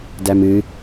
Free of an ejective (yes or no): yes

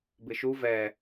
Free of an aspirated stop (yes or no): yes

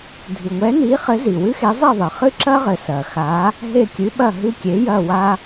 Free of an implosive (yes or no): no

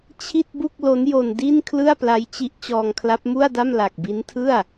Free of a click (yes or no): yes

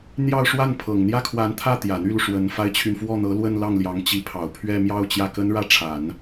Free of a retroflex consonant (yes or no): no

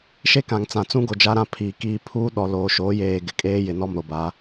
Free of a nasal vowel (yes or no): no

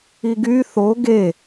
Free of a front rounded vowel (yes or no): no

